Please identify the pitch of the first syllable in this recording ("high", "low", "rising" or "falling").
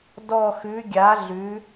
low